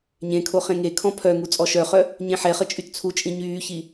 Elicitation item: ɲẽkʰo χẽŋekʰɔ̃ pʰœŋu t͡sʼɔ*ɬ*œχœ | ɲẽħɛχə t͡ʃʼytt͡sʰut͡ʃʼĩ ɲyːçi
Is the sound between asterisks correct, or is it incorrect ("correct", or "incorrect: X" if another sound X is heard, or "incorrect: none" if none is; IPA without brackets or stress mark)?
incorrect: ʃ